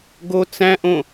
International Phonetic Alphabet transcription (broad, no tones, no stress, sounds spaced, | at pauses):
ɡ o t͡s æ̃ ʔ õ